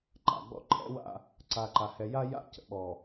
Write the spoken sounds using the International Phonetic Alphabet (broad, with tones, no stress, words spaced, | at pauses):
ǃa̰˨ɡ͡bɔ̰˦ ǃʰɛ̰˦wa̰˦˨ | ǀa˨ǃa˨hɛ˨ ja˦ja̰˦˨ cə̰˨ɓɔ˨